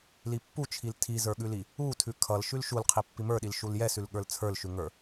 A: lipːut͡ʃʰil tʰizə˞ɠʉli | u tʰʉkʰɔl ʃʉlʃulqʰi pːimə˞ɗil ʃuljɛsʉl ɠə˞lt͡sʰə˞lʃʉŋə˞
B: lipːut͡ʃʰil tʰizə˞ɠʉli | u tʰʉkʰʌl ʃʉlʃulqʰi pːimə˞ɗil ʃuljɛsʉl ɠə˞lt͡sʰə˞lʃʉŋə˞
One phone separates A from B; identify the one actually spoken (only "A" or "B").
B